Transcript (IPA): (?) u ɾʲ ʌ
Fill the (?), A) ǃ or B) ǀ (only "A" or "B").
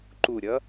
A